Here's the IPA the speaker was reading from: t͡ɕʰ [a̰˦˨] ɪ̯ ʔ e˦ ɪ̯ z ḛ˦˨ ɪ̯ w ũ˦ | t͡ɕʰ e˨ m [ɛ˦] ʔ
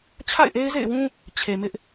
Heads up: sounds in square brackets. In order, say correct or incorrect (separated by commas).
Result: correct, incorrect